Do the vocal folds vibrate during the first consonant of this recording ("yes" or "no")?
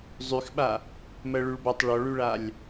yes